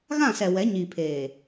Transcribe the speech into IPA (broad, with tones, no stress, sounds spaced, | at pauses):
ɣ ã˦˨ s ɛ˨ w ɛ˨˦ ɲ iː˨ pʰ eː˨